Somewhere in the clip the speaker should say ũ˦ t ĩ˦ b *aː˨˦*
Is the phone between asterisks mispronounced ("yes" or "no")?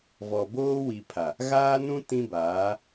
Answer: no